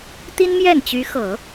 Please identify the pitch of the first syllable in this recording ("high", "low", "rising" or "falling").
high